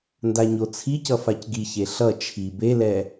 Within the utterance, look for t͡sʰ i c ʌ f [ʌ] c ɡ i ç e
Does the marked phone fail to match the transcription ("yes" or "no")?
yes